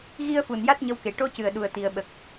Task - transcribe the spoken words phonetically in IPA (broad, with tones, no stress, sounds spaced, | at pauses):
ɣ i˧ ə̯ f u˨˩ n j a˦˥ t̚ ɲ ə˧ w k e˨˩ ʈ o˧˥ c ɨ˨˩ ə̯ ɗ u˨˩ ə̯ t̪ i˨˩˨ ə̯ ɓ ə˨˩ k̚